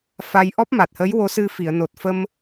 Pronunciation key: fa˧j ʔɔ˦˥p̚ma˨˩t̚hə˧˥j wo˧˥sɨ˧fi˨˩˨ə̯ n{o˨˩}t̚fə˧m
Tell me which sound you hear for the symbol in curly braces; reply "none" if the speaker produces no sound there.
o˨˩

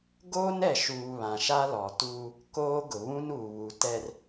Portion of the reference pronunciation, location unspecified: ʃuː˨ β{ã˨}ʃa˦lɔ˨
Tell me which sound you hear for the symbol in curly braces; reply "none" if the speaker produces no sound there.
ã˨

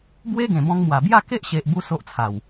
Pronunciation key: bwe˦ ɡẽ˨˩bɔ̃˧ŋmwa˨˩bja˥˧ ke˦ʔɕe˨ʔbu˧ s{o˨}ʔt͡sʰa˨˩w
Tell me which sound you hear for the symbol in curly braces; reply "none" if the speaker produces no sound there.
o˦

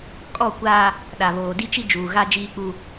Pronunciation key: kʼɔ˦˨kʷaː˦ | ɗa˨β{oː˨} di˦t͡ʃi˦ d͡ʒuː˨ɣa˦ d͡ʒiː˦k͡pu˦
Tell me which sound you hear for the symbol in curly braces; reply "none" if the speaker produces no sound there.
oː˨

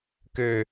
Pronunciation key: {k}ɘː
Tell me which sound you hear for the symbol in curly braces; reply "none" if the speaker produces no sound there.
k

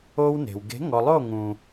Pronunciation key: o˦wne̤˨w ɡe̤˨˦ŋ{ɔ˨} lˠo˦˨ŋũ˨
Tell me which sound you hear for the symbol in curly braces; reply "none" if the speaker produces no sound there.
ɔ˨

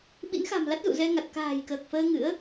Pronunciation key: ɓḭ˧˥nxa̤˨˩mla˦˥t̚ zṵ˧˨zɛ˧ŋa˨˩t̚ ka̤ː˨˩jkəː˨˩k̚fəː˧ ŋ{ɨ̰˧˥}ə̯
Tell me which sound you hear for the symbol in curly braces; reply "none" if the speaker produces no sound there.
ɨ̰˧˥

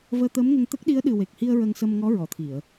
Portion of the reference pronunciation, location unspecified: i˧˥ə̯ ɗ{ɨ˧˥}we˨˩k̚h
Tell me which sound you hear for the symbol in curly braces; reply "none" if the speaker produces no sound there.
ɨ˨˩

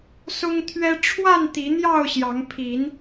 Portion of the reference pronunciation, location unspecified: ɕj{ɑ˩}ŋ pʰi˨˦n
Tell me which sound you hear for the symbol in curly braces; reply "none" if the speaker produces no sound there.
ɑ˨˦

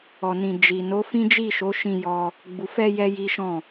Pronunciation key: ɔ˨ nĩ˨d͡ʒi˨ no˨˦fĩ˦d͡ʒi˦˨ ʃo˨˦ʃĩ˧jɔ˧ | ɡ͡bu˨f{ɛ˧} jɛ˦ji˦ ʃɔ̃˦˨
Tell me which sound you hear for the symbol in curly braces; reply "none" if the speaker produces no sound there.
ɛ˧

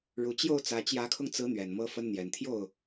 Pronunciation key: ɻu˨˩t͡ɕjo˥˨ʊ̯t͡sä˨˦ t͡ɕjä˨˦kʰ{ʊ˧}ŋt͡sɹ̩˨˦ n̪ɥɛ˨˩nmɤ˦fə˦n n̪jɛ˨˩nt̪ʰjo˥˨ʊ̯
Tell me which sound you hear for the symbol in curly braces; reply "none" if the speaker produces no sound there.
ʊ˧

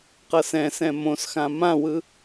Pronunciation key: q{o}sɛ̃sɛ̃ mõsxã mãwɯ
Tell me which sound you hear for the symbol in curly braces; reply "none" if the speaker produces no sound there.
ɤ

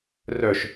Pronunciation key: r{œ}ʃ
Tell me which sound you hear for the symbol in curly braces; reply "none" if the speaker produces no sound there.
œ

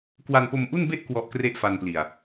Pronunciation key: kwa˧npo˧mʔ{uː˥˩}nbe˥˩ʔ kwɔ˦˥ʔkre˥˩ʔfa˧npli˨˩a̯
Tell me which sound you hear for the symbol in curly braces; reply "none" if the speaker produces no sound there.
u˥˩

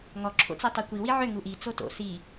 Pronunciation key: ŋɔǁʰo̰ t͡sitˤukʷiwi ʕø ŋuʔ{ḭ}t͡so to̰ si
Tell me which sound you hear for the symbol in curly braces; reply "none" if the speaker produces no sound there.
i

